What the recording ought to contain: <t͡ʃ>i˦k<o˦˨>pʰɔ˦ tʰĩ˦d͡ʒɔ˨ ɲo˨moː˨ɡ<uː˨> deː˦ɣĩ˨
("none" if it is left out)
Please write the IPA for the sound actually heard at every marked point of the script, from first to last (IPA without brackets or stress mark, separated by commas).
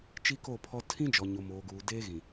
t͡ʃ, o˦˨, uː˨